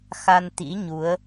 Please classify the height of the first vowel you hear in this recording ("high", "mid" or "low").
low